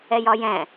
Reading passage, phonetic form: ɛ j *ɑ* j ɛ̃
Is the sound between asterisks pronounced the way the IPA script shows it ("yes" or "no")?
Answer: no